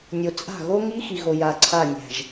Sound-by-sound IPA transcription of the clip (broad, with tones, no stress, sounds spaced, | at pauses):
nʲ o˨ t͡sʼ a̤˦˨ ɣ o˦ ŋ i˦ x i˨ ɣ o˨ j a˨ ǀʰ a˦˨ nʲ æ̤˨ ʒ